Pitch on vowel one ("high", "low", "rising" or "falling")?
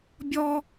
high